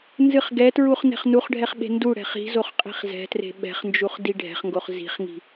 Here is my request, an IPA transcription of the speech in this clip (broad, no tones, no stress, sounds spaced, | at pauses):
n z ɨ χ ɡ ɛ t ɹ u χ n ɛ̤ χ n u χ ɖʱ ɛ χ ɓ e̤ n d u ɽ ɛ̤ χ i̤ z o χ qʼ i̤ χ z ɛ̤ t r e̤ ɓ ɛ̤ χ n d͡ʒ u χ d i ɖʱ ɛ̤ χ ŋ ɡ o χ z i̤ χ ŋ i̤